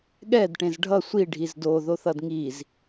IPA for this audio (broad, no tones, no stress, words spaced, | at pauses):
ɠɛd ʈẽzɖʱʌ sʷiɖʱiz doðoθʌd ŋiz